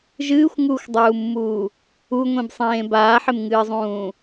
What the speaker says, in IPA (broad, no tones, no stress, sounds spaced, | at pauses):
ʒ ɨː xʷ ŋ uː xʷ dˤ uː mː uː | u ŋʷ ẽ b sˤ ẽː b aː ħ ɪ m ŋ ɨː zˤ ũː